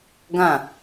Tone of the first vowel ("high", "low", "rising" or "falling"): falling